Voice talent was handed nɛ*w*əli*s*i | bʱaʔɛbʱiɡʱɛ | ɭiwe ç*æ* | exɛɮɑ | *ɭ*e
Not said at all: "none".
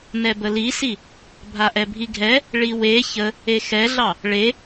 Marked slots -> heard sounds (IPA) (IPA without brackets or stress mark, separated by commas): b, s, ə, ɭ